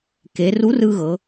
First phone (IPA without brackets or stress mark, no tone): k